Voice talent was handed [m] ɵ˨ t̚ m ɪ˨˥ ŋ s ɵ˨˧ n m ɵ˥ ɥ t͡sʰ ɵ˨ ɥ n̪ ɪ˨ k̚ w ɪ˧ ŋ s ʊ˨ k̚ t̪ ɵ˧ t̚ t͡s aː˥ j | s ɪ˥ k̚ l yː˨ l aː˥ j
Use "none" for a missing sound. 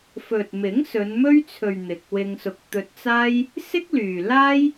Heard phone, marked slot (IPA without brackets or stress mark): f